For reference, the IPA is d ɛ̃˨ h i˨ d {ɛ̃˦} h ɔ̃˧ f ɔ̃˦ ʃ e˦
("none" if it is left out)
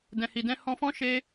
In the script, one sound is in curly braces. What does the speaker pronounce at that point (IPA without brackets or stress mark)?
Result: ɛ̃˧